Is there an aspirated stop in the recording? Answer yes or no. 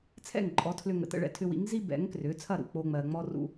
yes